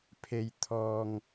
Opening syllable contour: low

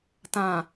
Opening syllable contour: low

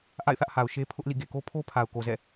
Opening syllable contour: falling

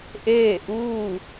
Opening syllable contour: falling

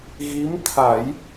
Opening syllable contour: rising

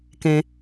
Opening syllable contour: high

